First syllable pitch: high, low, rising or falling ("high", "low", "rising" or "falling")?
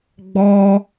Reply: high